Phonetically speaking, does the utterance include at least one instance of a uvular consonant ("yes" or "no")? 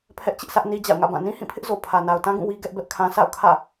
no